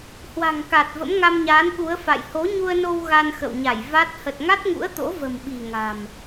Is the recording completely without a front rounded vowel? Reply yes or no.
yes